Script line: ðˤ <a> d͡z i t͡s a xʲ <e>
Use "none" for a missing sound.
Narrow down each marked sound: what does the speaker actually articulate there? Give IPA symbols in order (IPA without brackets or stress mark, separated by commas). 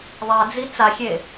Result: a, e